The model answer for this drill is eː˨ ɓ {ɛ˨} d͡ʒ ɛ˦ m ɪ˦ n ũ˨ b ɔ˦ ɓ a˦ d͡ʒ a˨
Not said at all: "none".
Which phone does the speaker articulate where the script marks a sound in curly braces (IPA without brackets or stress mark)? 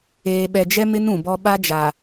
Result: ɛ˨